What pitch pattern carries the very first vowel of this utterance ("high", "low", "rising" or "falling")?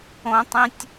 high